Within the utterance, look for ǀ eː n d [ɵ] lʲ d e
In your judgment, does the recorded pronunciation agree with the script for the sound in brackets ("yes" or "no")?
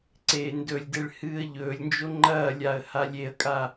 yes